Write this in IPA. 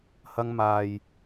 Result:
hɐ˧ŋmaː˨j

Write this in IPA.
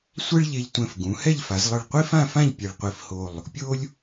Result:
sʷɛ˥ɭʎe˧ʎtʷɛ̃˧˩f ɡũ˩˧ hɛ˥˧ʎfa˩˧zlˠɯ˧˩ɭ qʷi˥fã˥˧fã˥˧ʎ pʲe˧ɭ qʷi˧˩fho˧˩lˠ | pʲo˥lʲ

